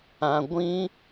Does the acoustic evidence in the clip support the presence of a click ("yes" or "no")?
no